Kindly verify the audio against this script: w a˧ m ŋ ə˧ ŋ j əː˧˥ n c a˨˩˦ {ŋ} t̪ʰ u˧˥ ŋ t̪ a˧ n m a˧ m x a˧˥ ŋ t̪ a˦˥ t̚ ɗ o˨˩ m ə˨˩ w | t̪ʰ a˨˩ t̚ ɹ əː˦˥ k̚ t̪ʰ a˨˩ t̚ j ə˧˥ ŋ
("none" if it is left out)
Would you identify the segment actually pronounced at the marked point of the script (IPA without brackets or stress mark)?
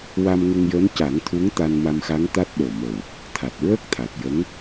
ŋ